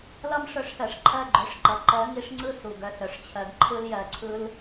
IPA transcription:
l ʌ˦ m ʂ œ˧ ʂ s ɜ˨ ʂ ǃʰ ɜ˦˨ ɡ͡ǃ œ˨˦ ʂ ǃ ʌ˨ ǃ ɜ˨˦ ŋ i˧ ʂ ŋ͡ǀ ɯ˦˨ s u˨ ɡ œ˧ s œ˨ ʂ t͡ɕʰ ɜ˧ ɡ ǃʰ ɯ˧ l j ɜ˨ ǀʰ ɯ˧ l

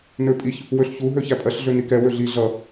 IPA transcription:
n ø pʼ i ç | w ø ɬ ç u ɦ ø ç æ pʼ ɜ ɬ ɮ ø n i k ɛ w ø ɮ i ɮ ʌ

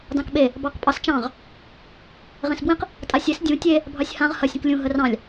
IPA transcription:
d ɑ̃ k ɓ e | b ɑ q pʼ ɑ s t͡ʃ ɑ̃ ʁ | ʁ ẽ s b w ĩ q | tʼ a sʲ e s dʲ ũ tʲ e | bʱ ɑ sʲ h ã ʁ h ɐ sʲ ə̃ k lʲ ũ ɦ ə r ɑ̃ lʲ

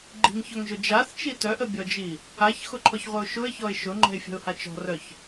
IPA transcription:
ɡ͡ǃ i̤ ŋ ç œ ŋ ʒ ʊ d͡ʒ a θ t͡ʃ i t œ ʔ ə bʲ ɔ d͡ʒ i | a ç x ʊ ǃʰ ɔ ç ʁʷ œ ʊ̯ ʃ ʊ ɪ̯ ç ɔ ɪ̯ ʃ ʊ ŋ͡ǃ ɛ̤ ɪ̯ fʲ ə̤ ʊ̯ h a t͡ʃ ɔ̤ r œ ç

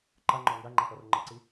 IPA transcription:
ǃ a ŋ͡ǃ ɔ ŋ ɡ a ŋ͡ǃ a p ɔ r ŋ͡ǃ ɪ ǀ i

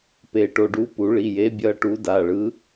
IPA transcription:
p e˨˩˦ ʈ o˩˧˩ ɖ u˨˥ p u˨˩˦ ɭ i˩˧˩ j e˨˥ bʲ ʌ˨˥ ʈ u˨˥ d a˩˧˩ ɭ ɯ˨˥

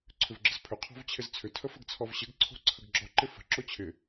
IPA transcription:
ǀʰ ʏ v ɡ͡ǁ ə z pʰ ʏ qʰ ɔ̤ v t͡ɕʰ ɪ z t͡sʰ ʏ tʰ ə f ə ɡ t͡sʰ ɔ v ɕ ɪ ɡ ǀʰ o̤ ǀʰ ə ɡ ɡ͡ǁ ɔ ǃ ɪ f ə̤ ǁ o t͡ɕʰ ɪ

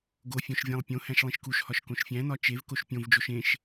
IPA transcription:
ɡ o fʲ õ ʃ vʲ æ̃ lˠ pʲ õ h æ̃ ʃ lˠ ĩ ʃ k u ʃ h ɒ ʃ k õ ʃ fʲ æ̃ n ɒ t͡ʃ e v k o ʃ pʲ õ v d͡ʒ o ʃ ẽ ʃ

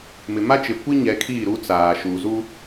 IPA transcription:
m ɪ˨ m a˦ t͡ʃ ɪ˨ kʷ i˦ ɲ ɛ˨˦ kʰ iː˦˨ ɾ u˦ t͡s aː˨ ʃ uː˨ z u˦

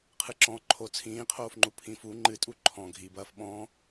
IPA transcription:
qʰ ɨ ǁ ɔ̃ ǃʰ o t͡sʰ ĩː qʰ oː f ŋ͡ǃ u pʰ ĩ f u ŋ͡ǃ ɨ tʼ u ǃʰ ɔ̃ ɡʱ i b ɐː f ɓ ɔ̃

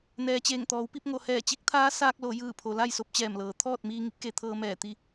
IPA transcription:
n ɛː˩ t͡ɕ eː˧˩ ŋ t̪ ɔː˩˧ w p i˥˨ p̚ ŋ o˩ h ɛː˧˩ t͡ɕ i˧˥ k̚ t̪ʰ aː˧˥ s aː˧ k̚ l o˩˧ j ɯː˧˩ pʰ o˩ l a˥˨ j s o˧ p̚ t͡ɕ ɛː˧˩ m l ɤː˩ t̪ʰ ɔː˥˨ t̚ m iː˧ ŋ i˧˥ p̚ k e˩˧ t̪ʰ ɤː˧ m ɛː˧˩ t̪ i˥˨

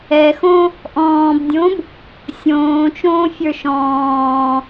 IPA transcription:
ɛ x õ | ʔ ɔ̃ː b dʲ õ b | sʲ õː t͡ʃ õː fʲ ə˞ ʃ ɔ̃ː

